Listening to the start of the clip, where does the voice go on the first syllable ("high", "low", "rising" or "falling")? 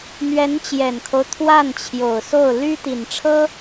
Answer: rising